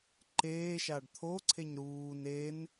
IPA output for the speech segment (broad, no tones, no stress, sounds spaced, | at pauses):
ǃ eː ʃ a ɖ t̪ʰ o ǀʰ e ɲ ɾ uː n e n